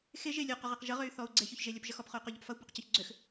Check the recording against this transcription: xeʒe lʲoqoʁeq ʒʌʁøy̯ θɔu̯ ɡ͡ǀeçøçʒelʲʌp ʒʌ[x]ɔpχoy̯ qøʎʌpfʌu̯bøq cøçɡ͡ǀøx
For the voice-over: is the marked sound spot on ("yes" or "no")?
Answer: yes